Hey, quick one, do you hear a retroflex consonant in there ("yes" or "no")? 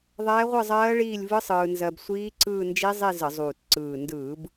yes